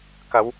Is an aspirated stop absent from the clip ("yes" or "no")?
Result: yes